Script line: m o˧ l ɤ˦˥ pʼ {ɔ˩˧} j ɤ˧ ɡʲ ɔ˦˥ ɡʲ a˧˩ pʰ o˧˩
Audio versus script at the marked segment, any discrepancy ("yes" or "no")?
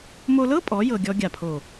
no